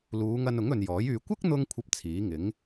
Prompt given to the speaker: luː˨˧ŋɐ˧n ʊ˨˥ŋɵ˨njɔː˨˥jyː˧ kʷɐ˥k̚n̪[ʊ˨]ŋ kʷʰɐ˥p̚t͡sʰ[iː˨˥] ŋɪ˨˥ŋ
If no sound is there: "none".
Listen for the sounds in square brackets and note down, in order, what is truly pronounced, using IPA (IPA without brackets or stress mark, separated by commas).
ʊ˧, iː˨˥